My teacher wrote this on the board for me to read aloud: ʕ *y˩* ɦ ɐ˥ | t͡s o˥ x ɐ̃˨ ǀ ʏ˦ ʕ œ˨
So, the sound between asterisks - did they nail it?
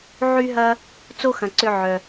no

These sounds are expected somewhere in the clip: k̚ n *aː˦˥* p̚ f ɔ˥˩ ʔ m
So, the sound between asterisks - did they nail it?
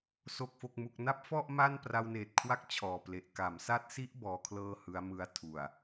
no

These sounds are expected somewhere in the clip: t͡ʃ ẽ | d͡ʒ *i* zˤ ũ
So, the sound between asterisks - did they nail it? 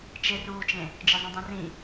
no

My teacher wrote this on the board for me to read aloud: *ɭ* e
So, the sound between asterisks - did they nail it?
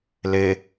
no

